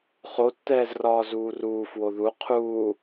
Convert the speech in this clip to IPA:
χ o tː ɛː z r ɒː z uː r uː f w o ð u qʰ uː

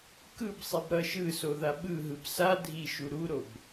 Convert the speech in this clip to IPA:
k ɯ b sˤ i b ɾ ʌ ʃ ɯ s o ð a ɓ ɯ ɦ ɯ b s a dʱ i ʃ u ɾ u ɾ o b

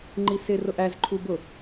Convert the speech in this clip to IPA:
ŋ͡ǃ i s ɪ r ʊ ʔ æ z ǃʰ u b ʊ

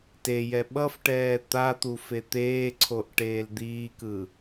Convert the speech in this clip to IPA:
t e j ɛ ɓ ʌ f ʈ ɛː t̪ a t̪ u f e t̪ eː ǀʰ o ʔ ʈ eː l d̪ iː k ɯ

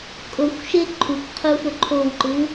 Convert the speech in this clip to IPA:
kʼ o xʷ ʃ e ǃʰ u kʷ qʰ u f ɵ ǃʰ o w ǃ ɨ w

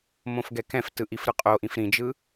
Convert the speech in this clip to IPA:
m õ f ɡ ɛ k ɛ̃ f t ɯ ʔ i f ɾ ɯ qʼ o ʔ ĩ f ɾ ĩ d͡ʒ ɯ

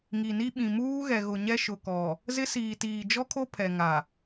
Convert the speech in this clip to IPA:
ŋ i˨ n i˦ ɓ ĩ˨ m uː˦ ɣ ɛ˨ ɣ ʊ˨ ɲ ɛ˦ ʃ ʊ˨ k ɔ˨ | z ɪ˦ s iː˨ t iː˨ d͡ʒ ɔ˦ kʰ o˦ pʰ ɛ˨ ŋ a˨

